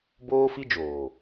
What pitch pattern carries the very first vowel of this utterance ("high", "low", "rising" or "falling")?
high